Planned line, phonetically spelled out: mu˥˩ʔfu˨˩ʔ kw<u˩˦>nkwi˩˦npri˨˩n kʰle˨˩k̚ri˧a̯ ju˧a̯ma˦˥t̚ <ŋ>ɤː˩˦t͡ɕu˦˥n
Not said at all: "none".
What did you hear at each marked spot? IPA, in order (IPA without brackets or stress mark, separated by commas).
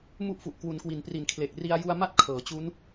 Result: u˩˦, kʰ